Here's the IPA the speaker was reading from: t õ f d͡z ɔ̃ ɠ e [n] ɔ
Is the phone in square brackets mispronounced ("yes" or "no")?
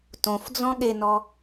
no